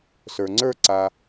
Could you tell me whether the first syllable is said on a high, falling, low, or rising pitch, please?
low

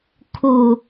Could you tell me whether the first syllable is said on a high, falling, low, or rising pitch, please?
low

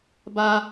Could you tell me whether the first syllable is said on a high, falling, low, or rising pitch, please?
high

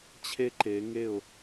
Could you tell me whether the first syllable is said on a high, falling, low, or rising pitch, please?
high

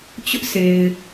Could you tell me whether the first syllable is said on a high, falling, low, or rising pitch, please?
high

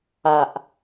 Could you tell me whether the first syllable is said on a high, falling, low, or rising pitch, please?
low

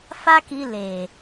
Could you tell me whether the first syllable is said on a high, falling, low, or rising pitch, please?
high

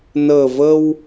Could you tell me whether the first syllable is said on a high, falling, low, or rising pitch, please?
low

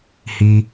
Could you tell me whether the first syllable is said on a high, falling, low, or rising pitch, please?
high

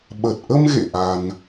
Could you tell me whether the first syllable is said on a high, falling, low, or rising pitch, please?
low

